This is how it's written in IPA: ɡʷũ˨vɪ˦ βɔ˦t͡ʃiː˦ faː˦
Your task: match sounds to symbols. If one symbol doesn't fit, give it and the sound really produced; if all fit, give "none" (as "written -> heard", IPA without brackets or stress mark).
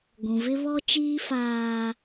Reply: none